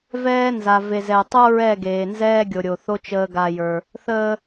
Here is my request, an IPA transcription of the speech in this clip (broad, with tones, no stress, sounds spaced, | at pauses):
v ɛː˦ n z a˨ v e˨ z ɛ˨ tˤ o˦ ɹ ɛ˦˨ ɡ eː˨ n z ɛː˦ ɡʲ o˨ ɾʲ o˨ θ o˦ t͡ʃ əː˦ ɡ a˦ j ə˞˦ | θ əː˦